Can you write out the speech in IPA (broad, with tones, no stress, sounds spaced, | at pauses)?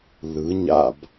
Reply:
l ɯ˩˧ ɲ a̰˧˩ b